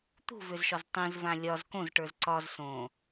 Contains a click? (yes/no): yes